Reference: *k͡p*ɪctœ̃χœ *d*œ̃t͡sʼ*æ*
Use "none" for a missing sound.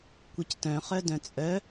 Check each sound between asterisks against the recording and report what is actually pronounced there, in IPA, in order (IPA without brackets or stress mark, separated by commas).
kʷ, d, œ